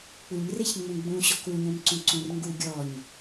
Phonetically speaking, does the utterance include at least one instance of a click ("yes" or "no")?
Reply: yes